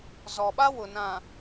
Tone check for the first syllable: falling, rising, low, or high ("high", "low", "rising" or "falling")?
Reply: low